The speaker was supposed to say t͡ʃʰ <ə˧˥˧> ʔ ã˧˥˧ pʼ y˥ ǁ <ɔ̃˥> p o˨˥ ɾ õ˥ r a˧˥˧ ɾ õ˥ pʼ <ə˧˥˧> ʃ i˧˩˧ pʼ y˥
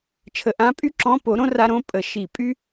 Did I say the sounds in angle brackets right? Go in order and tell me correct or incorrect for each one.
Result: incorrect: ə˧˩˧, incorrect: ɔ̃˧˥˧, incorrect: ə˧˩˧

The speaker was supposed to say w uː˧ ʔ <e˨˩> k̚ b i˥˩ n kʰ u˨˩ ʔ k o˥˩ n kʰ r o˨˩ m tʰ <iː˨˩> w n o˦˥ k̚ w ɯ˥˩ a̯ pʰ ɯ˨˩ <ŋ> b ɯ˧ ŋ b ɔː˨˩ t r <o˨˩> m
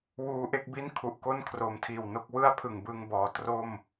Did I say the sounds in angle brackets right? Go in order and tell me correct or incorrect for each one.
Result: incorrect: e˥˩, correct, correct, incorrect: o˥˩

